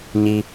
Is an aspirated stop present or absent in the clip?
absent